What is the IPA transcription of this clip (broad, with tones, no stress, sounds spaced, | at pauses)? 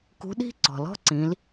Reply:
k ṳ˧˥ ɗ i̤˥ ǀ ɔ̤˩ l ɔ̤˥ ǀ ĩ˩˧ l